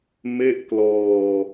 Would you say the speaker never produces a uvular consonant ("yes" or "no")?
yes